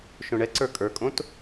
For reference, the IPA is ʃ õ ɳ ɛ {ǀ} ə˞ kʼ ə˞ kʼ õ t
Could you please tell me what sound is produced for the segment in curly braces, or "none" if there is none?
ǀ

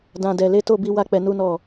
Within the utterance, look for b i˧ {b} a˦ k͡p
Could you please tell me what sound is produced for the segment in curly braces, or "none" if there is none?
w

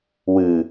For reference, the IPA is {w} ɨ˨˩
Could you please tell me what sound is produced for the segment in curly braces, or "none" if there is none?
w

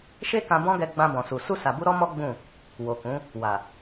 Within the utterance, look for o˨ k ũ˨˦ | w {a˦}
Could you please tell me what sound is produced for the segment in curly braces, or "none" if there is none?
a˨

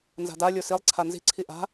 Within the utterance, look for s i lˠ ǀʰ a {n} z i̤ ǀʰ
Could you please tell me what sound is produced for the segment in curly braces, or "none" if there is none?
n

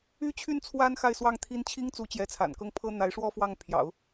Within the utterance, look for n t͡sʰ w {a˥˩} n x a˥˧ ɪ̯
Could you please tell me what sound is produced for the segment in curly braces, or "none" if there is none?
a˥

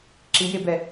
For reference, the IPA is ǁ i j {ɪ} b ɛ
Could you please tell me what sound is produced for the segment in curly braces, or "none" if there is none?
ɪ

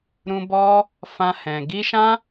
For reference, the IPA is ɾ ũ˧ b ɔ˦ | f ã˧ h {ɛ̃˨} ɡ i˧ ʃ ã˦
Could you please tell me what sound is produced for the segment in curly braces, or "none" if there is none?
ɛ̃˨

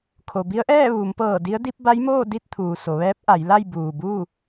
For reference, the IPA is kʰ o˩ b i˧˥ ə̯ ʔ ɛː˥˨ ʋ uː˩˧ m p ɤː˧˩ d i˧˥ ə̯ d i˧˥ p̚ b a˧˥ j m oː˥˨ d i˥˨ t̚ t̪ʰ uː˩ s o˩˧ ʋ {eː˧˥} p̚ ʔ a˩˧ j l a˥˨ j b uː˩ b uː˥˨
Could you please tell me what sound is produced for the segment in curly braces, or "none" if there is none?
ɛː˧˥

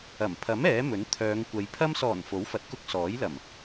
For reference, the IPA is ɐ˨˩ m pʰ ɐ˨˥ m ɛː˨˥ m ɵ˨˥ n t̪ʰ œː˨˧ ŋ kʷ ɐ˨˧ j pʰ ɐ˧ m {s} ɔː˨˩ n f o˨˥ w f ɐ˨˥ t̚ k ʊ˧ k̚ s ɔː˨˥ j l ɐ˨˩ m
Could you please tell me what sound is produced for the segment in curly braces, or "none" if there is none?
s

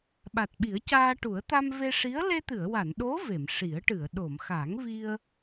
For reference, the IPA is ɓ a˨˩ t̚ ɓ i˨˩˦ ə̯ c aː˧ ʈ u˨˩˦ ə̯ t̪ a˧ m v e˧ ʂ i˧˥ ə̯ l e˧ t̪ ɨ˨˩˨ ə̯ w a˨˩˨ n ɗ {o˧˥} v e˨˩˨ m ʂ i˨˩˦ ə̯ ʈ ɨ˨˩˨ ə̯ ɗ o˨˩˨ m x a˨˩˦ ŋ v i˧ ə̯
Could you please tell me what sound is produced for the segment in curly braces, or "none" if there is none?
o˧˥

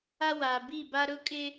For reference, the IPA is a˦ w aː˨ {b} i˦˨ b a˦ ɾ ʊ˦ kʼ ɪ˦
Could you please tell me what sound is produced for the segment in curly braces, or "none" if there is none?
b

